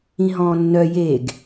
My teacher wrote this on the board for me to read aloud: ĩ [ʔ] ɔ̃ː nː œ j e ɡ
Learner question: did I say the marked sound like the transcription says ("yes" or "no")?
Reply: no